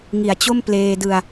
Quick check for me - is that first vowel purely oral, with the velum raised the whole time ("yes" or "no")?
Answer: yes